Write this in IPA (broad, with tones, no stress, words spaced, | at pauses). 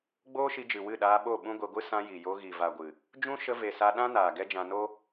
ɡ͡boː˦ʃi˧d͡ʒɨ˨ wɨ˦˨ɗaː˧ɓo˦˨ ɓũ˦ɡʷe˧ɡʷɨ˦ sã˧ji˨jo˧ ɣi˨va˨ ɡʷɨ˨ | d͡ʒũ˦ ʃə˧ve˨sa˧ ɗã˦naː˨ ɡɛ˦d͡ʒã˧no˦